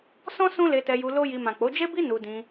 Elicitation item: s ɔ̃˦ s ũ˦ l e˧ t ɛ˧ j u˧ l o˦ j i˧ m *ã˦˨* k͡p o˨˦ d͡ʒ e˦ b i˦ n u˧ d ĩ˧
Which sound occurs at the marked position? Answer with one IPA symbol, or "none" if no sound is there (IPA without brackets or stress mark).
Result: ã˨